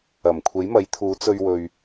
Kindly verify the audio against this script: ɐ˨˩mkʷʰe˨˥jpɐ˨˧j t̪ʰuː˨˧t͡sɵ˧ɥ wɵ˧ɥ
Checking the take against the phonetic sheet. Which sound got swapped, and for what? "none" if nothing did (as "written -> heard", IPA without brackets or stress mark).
p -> m